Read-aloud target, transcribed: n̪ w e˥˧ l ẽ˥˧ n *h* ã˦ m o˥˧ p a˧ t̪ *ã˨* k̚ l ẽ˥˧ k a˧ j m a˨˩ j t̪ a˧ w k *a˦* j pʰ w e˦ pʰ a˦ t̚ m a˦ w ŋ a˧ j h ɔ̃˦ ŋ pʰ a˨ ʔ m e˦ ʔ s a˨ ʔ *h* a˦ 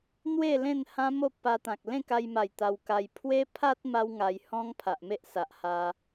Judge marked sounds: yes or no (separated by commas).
yes, yes, no, yes